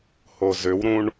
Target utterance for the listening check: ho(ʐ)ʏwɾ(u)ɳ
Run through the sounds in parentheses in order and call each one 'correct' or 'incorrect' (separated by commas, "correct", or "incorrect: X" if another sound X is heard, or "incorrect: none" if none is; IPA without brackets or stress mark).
incorrect: z, incorrect: ũ